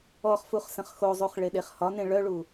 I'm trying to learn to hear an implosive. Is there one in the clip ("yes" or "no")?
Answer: yes